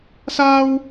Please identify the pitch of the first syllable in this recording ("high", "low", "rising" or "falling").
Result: high